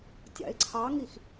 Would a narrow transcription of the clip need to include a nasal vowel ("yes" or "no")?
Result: no